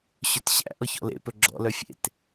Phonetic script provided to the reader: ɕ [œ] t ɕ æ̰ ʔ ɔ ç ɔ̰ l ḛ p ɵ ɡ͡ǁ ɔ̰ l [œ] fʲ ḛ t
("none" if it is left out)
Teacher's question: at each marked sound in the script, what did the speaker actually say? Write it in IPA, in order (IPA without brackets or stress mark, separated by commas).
ɵ, œ